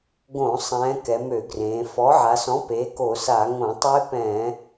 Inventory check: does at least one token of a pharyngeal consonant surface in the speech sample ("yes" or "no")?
yes